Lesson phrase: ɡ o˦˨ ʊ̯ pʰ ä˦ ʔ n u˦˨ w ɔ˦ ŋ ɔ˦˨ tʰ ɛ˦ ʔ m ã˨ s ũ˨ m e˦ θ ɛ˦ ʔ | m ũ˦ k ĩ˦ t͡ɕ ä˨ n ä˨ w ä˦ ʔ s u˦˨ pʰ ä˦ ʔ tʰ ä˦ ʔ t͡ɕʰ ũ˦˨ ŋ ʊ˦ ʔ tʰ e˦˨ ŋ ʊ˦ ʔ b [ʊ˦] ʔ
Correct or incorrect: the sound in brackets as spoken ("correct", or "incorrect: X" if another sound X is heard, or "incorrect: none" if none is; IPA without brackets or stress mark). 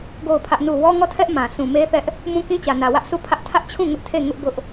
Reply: correct